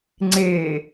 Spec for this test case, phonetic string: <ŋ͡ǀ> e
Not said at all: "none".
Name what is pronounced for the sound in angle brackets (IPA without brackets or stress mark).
ŋ͡ǀ